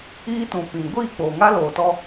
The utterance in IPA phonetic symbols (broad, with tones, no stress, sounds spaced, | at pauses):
iː˦ t ũ˨ p ĩ˨ ɡʷ iː˦˨ k͡p oː˨ ŋ a˦ l oː˨ t ɔ˦